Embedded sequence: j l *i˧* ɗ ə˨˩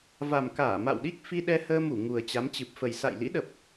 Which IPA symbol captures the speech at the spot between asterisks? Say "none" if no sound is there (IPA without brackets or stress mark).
ḭ˧˥